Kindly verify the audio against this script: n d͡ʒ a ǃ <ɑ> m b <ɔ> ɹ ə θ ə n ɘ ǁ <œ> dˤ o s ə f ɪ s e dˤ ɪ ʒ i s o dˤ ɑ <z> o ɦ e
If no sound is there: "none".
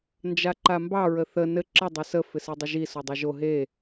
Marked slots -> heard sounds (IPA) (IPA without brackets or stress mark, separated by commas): a, ɑ, ə, ʒ